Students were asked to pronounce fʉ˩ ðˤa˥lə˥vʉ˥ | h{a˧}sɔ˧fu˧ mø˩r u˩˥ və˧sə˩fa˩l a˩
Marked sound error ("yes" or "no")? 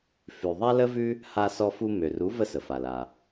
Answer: no